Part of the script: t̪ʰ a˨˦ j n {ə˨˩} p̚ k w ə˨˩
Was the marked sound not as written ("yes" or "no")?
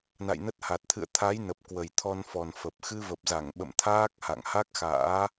no